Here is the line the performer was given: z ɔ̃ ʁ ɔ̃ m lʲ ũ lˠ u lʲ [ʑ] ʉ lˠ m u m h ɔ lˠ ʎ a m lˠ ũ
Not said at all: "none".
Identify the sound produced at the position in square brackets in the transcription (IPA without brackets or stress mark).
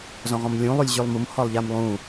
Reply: ʑ